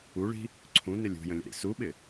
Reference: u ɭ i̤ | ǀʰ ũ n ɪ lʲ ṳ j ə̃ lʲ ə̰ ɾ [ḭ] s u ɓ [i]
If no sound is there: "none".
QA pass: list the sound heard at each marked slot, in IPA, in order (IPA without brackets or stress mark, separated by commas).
ḭ, ɪ